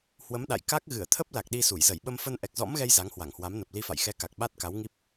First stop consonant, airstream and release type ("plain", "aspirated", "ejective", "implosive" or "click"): implosive